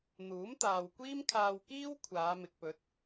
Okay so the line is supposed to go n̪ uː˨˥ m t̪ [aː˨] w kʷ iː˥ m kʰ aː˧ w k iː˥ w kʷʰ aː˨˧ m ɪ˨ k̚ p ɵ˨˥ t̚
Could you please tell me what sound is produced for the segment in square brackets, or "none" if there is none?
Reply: aː˨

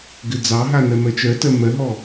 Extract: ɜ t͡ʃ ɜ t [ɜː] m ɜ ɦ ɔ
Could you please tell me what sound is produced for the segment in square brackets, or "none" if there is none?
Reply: ɜ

